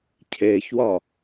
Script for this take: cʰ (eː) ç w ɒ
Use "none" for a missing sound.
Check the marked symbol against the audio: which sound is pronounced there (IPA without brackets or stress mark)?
eː